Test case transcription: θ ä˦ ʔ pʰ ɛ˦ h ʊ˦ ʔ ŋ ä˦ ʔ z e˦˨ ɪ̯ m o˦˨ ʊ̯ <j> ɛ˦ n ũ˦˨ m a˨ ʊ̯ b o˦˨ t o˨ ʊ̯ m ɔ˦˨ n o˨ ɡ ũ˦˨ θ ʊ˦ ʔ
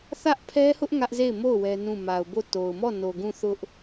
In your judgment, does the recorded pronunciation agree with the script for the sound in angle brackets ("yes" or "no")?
no